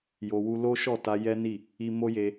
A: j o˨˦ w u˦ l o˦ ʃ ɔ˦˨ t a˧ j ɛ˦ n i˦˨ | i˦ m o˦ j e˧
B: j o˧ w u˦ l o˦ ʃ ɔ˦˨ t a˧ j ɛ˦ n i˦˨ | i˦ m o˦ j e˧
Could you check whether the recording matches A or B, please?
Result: B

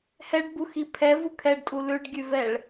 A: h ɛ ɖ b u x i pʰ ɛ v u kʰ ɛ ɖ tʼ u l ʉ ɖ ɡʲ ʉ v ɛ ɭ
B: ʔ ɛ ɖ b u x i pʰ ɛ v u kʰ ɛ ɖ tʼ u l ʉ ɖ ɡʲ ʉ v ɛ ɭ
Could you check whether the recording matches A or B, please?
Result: A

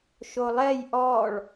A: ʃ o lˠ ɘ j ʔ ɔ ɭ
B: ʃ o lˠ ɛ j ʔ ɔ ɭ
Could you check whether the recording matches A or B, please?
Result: B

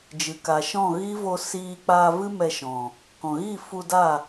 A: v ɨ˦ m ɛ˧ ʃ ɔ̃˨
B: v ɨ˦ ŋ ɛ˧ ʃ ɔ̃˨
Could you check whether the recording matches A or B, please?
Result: A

